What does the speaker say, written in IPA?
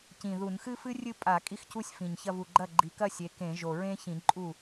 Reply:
c ĩ˨˩ ð u˧˩˧ n x ɨ˥ f ɨ˥ rʲ ɨ˥˧ pʼ a˧˩˧ kʼ i˥ x c u˥ sʲ f ĩ˨˩ ɲ ç ɐ˥˧ v u˨˩ ɡ͡ǃ ɐ˥˩ ɡ͡ǃ i˨˦ k ɐ˥˧ sʲ e˨˦ k ẽ˧˩˧ ʒ o˨˩ ɹ ẽ˥ ç ĩ˧˩˧ ǃʼ u˥˩

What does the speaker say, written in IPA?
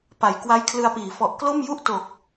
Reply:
p a˩˦ j k w a˦˥ j kʰ l ɯ˧ a̯ p iː˩˦ f ɔ˨˩ ʔ k l o˥˩ m j u˥˩ ʔ t o˨˩ k̚

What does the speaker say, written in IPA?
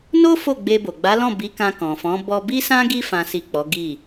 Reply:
n o˦ f o˦˨ ɡ͡b e˧ b o˨ ɡ͡b a˨˦ l ɔ̃˦˨ b i˨˦ k ã˧ k ɔ̃˨ f ɔ̃˨˦ b ɔ˧ b i˦ s ã˦ ɡ i˧ f ã˨ s i˨ k͡p ɔ˨˦ ɡ i˦˨

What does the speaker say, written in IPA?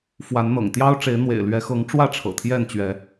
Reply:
f w a˨˦ n n̪ ɤ̰˨˩ ŋ t̪ j ɑ˦ ʊ̯ ʈ͡ʂ e˨˦ ɪ̯ n̪ w ḛ˨˩ ɪ̯ l ɥ ɛ˨˦ x ɤ˨˦ ŋ ʈ͡ʂ w ä˥˨ ʈ͡ʂʰ ɤ̰˨˩ t̪ʰ j ɛ˥˨ n t͡ɕ ɥ ɛ˨˦

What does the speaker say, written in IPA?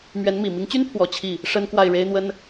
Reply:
m ɥ ɛ˧˥ n m i˨˩ m i˧˥ ŋ t͡ɕ y˥ n pʰ w ɔ˨˩ t͡ɕʰ i˥˩ | ʂ ə˥ n k w a˥˩ ɪ̯ ɻ e˥ ɪ̯ n̪ w ə˥ n

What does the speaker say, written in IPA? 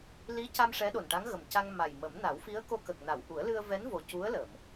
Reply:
l i˧˥ c a˧ m ʂ ɛ˧˥ ɗ o˨˩ n ʈ a˧˥ ŋ ɣ ə˨˩ m c a˧ ŋ m a˨˩ j m ə˨˩˦ m n a˨˩˦ w f i˧˥ ə̯ k o˧ k ə˨˩ k̚ n a˨˩˨ w ʔ u˨˩˦ ə̯ l ɨ˧ ə̯ v ɛ˧˥ n v o˨˩ c u˧˥ ə̯ l ə˨˩˨ m

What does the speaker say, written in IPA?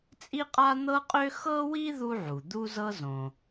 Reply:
t͡sʼ i˥ qʼ a˥ n̪ ɤ˥ qʼ ø˥ x ɤ˥ w i˥ ð u˥ ʕ u˩ d̪ u˥ z ɤ˥ z õ˩

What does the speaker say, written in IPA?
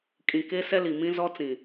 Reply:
kʼ ĩ˨ k e˦ s ɛ˦ l i˨ m ĩ˦ z ɔ˦ t͡s ĩ˨

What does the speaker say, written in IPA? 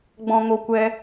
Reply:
ɡ͡b ɔ̃˨ ŋ o˨ kʷ ɛ˦

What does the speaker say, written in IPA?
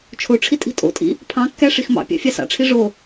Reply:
t͡ʃʰ o ʈ͡ʂʰ i tʼ i̤ tʼ o̰ tʼ ḭ | pʰ ɑ̃ kː æ ʂ i x m ɑ̰ pʲ ɑ̰ fʲ ɑ s ɑ̰ ʈ͡ʂʰ i ʐ o

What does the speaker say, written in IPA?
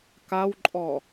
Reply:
k a w ǃʼ ɔ

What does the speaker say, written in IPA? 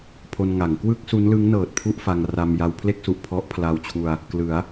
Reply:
pʰ o˧ n ŋ a˩˦ ŋ k w ɯ˥˩ k̚ s u˦˥ n l ɯ˦˥ ŋ n ɤː˨˩ t̚ pʰ u˥˩ ʔ f a˧ ŋ r a˧ m j a˧ w pʰ l e˥˩ k̚ s u˨˩ ʔ pʰ ɔ˦˥ ʔ pʰ l a˧ w t͡ɕʰ u˧ a̯ | k l ɯ˩˦ a̯

